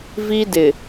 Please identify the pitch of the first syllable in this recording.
high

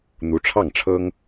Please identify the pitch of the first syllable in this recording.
rising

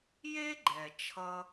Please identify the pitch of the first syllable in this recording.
high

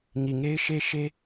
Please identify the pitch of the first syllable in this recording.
low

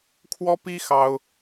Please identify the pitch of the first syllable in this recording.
high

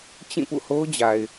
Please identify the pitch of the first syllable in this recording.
falling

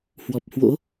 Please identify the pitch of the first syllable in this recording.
low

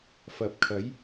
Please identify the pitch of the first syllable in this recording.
low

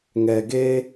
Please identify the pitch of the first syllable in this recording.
low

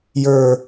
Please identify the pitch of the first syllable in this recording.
falling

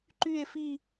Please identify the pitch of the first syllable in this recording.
falling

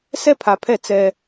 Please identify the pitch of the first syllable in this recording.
high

